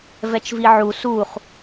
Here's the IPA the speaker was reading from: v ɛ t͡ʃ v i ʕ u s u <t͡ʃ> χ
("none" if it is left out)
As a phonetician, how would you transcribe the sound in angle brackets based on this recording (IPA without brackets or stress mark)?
none